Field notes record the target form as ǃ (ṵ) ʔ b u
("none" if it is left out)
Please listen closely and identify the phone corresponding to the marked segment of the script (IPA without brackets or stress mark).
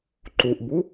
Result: u